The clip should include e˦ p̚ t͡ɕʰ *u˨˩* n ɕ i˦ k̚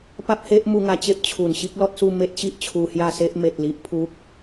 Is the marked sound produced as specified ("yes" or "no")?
yes